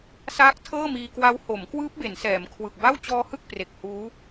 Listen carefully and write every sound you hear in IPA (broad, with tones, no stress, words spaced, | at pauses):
saː˦˥k̚tʰɤː˥˩miː˧kwa˦˥w ho˩˦mkwɯː˦˥p̚ be˩˦nsɛː˩˦mkʰwɯ˨˩k̚ ba˥˩wt͡ɕɔː˦˥hɯ˥˩k̚ pre˨˩k̚huː˦˥